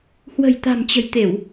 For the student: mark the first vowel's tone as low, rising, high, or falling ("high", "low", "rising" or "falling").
low